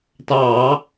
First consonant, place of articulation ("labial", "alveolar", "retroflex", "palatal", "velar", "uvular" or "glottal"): alveolar